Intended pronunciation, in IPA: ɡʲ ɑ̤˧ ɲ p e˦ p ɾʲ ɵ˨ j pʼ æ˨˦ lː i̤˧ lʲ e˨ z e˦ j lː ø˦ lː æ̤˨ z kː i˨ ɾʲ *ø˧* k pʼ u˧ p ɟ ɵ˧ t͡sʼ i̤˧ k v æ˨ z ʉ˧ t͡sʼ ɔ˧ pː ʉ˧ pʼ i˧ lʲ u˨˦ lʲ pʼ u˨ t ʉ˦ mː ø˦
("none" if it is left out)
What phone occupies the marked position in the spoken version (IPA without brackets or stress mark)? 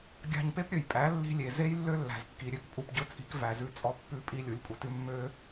ø˧